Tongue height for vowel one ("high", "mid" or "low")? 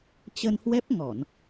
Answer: mid